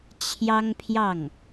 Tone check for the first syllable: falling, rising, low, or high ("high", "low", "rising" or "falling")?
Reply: high